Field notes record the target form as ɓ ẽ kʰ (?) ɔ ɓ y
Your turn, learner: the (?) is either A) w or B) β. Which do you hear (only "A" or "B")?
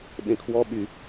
A